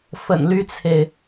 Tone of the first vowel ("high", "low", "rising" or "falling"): low